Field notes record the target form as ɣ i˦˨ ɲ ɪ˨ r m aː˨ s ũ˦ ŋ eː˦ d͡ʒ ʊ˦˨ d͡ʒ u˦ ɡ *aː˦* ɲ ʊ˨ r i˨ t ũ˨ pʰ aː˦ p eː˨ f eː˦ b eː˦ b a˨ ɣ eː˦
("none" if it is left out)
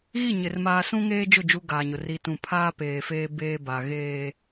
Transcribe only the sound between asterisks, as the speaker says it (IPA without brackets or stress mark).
aː˨